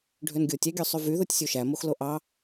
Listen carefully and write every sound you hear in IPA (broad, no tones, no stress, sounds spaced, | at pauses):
ɖʱ ø n ɡʲ o tʲ æ ɡʲ ø sˤ y v y ð o tʲ sʲ o ʃ æ m o x l o ʔ ɑ